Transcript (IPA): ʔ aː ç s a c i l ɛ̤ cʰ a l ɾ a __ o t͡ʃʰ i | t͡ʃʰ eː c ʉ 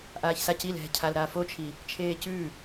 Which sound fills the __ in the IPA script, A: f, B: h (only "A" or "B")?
A